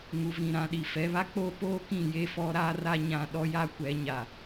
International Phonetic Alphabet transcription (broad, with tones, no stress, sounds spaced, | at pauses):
ŋ u˨ v ĩ˨ ɾ ã˨ ɗ i˨ f ɛ˨˦ β a˦ k͡p oː˦ p oː˦ k ĩ˦˨ j e˦ f ɔ˦ ɾ a˦ r a˦ ɲ ã˨ ɗ ɔ˦ j a˦ kʷ ɛ˨˦ ɲ a˨